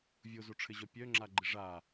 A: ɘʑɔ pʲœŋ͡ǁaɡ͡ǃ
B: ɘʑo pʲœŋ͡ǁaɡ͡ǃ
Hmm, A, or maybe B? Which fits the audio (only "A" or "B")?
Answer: A